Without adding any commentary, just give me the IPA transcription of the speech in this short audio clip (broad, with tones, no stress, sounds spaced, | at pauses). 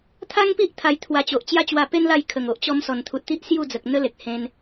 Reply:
t̪ʰ a˦ ŋ p i˦ ʔ t̪ʰ a˧ j t̪ʰ w a˧ t͡ɕ o˨ ʔ t͡ɕ j a˦ t͡ɕ w a˧ p e˦ n l a˥˧ j kʰ ə˨˩ ŋ o˨ ʔ t͡ɕ ɔ˧ m s ɔ˨˩ n t̪ʰ u˨ t̚ t̪ i˦ ʔ s j u˥˧ d͡z ə˨ k̚ n̪ ə˦ l e˨ k̚ h ẽ˧ n